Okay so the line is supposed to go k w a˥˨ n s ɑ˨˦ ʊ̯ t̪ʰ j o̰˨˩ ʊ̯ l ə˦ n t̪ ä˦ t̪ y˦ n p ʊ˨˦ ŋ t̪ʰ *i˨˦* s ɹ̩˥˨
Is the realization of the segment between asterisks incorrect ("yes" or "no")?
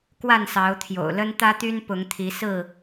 no